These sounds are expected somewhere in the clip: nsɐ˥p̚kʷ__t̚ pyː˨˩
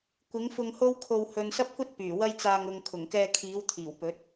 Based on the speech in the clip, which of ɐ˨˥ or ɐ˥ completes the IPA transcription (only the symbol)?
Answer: ɐ˥